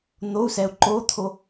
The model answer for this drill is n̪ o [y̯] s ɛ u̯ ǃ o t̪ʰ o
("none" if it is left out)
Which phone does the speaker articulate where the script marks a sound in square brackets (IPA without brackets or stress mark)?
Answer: u̯